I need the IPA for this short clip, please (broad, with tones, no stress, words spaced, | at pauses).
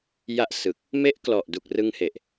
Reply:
ja˥˩ʔsɯ˨˩k̚ | me˦˥ʔklɔ˨˩ʔdu˨˩k̚ rɯ˧ŋhe˨˩ʔ